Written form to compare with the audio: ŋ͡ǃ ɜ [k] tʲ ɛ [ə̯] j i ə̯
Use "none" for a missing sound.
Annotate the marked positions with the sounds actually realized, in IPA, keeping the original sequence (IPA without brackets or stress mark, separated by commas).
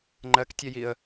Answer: k, none